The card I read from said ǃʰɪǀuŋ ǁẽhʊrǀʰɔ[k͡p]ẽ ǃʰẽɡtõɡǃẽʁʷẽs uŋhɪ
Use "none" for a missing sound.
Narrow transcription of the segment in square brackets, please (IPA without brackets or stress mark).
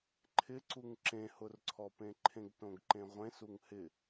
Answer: p